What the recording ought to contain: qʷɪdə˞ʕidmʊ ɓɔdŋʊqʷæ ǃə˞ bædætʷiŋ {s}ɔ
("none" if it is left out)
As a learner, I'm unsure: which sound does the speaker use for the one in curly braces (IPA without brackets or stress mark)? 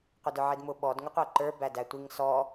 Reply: s